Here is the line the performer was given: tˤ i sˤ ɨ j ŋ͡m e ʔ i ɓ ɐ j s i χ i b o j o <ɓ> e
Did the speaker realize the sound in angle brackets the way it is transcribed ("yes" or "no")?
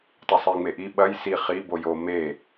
no